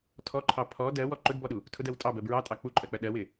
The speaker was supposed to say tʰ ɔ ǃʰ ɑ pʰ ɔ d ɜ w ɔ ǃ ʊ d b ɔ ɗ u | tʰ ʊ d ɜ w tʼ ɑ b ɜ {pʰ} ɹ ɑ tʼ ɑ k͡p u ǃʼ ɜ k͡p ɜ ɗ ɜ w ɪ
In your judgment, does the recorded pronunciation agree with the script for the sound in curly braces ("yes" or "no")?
no